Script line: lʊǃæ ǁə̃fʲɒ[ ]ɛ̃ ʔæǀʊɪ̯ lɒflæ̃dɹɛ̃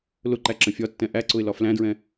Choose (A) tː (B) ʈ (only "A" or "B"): A